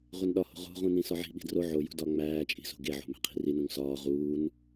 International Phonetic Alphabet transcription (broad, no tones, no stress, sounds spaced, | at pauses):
ʁʷ e n ɗ ɒ h o̤ ʁ o̤ ʁ ũ n ĩ s ɒ ʕ i̤ ɓ i̤ d r o ʕ o j ṳ d ɒ ŋ͡m æː t͡ʃʼ i̤ s o̤ ɡ e ʕ o̤ m æ̤ qʰ i̤ r i n ũ ŋ s ɒː ʁ uː n